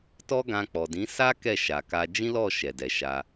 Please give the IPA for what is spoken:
t ɔ˦ ɡ ã˧ k͡p ɔ˨ d ĩ˨˦ s a˦ k ɛ˦˨ ʃ a˨ k a˧ d͡ʒ ĩ˦ l ɔ˦˨ ʃ ɛ˨ d ɛ˨ ʃ a˧

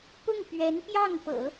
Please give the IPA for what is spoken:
p ʊ˥˩ ŋ p ɥ ɛ˧˥ n p j ɑ˥˩ ŋ p ɤ̰˨˩˦

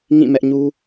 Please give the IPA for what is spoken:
ŋ ĩ˦˨ m ɛ˦ ʔ ɲ u˦

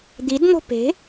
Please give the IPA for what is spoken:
d̪ i d n̪ o̤ p e̤

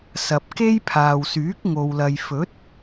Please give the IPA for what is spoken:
s ɐ˨ p̚ k e˥ j pʰ aː˨ w s yː˨˥ k̚ ŋ o˨ w l ɐ˨ j f ɵ˨˥ t̚

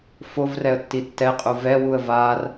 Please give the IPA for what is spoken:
f o v r ɛ ə̯ tː i tː ɛ qʼ u v ɛ w u ə̯ v a r

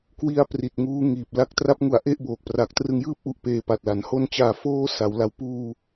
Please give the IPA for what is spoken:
k w i˦˥ a̯ p r i˨˩ t̚ ŋ uː˦˥ ŋ iː˨˩ p̚ l a˥˩ k̚ t r a˦˥ p̚ ŋ u˩˦ a̯ ʔ e˦˥ ʔ b oː˨˩ k̚ p r a˨˩ k̚ t r ɯ˧ ŋ j ɯː˥˩ p̚ ʔ u˨˩ ʔ p eː˧ p a˨˩ t̚ l a˩˦ n h o˧ n t͡ɕ aː˨˩ f oː˥˩ s a˩˦ w l a˦˥ w p uː˧

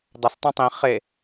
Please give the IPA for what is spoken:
dˤ a s tˤ ũ tˤ ĩ χ e

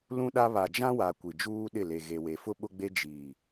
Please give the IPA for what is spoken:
l ũ˦ ɗ a˦ β a˨ d͡ʒ ã˦ w a˨ kʷ i˨ d͡ʒ uː˦ ɗ ɪ˦˨ l e˨ ɣ e˨ w e˨ f ʊ˦ ɓ ʊ˦ ɡ͡b e˦ d͡ʒ iː˨

